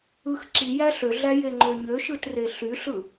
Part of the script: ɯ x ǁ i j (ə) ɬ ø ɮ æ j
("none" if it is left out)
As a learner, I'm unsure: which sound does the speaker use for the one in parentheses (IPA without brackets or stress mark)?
æ